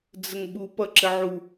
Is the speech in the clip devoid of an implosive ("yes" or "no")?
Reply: no